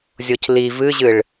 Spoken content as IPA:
zʲocliv ɨʑɨɭ

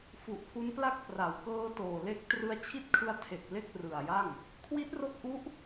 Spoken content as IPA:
fu˨˩ʔ pʰu˦˥npla˥˩k̚ pra˩˦wkɤː˦˥toː˨˩le˦˥k̚ trɯ˧a̯t͡ɕʰi˥˩t̚kʰɯ˦˥a̯tʰe˨˩k̚ le˥˩k̚rɯ˨˩a̯ja˥˩ŋ | kʰwi˦˥t̚ro˦˥k̚ʔu˦˥ʔ

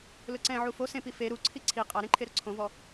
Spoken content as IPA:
lʊǀɛ̃ ʕufo sẽpi fe ɾuǀʰi ǀʰi qʼaɾẽǃʰeɾʊ ǀʰõvɔ

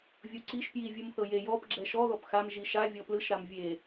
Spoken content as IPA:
vʲoǀiʃ pjivʲɯm θɤje jɔp ɡ͡ǁɛʃɔ ðɔpxam ʒiʃavʲɔ plɯʃɾam vʲe

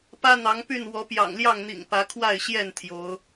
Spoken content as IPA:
pä˦n̪ɑ˨˦ŋpy˥˨n wɔ˨˦pjɑ̰˨˩ŋljɑ˥˨ŋn̪ḭ˨˩ŋ pä˨˦kʰwa˥˨ɪ̯ɕjɛ˥˨n t̪ʰjo˨˦ʊ̯

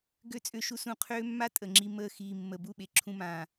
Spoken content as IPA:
ɡø˦t͡sʼø˦˨ ʃu˦sũ˧qʰøː˦mːa˦ tʼə˨ŋ͡ǁi˧ məː˧xiː˨ mːə˨ bu˦˨ɓe˨ ǁʰũ˧mãː˨

